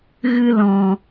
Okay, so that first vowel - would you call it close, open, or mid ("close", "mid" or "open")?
close